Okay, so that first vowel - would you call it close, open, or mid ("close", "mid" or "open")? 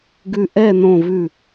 close